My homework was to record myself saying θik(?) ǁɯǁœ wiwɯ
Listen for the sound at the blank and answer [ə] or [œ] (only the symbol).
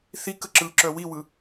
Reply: ə